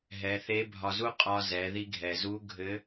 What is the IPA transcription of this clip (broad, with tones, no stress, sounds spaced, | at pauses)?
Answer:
ɦ ɛ˩˧ θ e˧˥ bʱ ɒ˧ z u˥ qʼ ɒ˧ z ɛ˩˧ ð i˧ ɡʱ ɛ˩ z u˧˥ ɡʱ ɘ˧˥